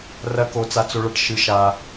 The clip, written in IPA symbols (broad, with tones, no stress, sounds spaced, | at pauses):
r ɐ˦ k o˦ t͡s a˦ t͡s o˦ ɭ ɐ˦ ʈ ʃ ɨ˦ ʃ a˦